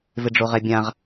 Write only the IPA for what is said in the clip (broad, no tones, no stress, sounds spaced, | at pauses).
v ɪ ɖ͡ʐ o ʁ ɛ bʲ ã ʁ